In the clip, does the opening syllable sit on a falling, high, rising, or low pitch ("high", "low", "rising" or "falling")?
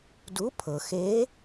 rising